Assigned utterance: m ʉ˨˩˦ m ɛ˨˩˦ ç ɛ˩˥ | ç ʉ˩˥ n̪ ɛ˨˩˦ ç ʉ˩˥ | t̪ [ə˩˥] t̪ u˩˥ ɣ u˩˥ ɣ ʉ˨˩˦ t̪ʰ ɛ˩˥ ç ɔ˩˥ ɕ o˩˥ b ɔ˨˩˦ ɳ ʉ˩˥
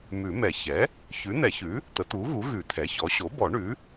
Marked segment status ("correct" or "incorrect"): correct